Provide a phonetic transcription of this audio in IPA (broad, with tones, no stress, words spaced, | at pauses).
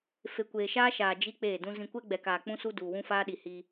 fe˨kʷeː˨ʃaː˦ ʃaː˨ d͡ʒi˦ k͡peː˦˨dũ˦ zĩ˨kʷɛ˦ɡ͡bɛ˨kaː˨ k͡pũ˦su˦ duː˨wũ˦faː˦ɗi˨ hi˦